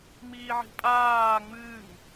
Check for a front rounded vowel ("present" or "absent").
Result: absent